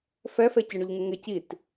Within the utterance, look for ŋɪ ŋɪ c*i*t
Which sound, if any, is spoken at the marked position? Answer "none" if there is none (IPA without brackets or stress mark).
i